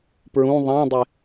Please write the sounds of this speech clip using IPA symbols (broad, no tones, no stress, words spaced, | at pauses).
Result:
pɹũ ðˤãdˤɪ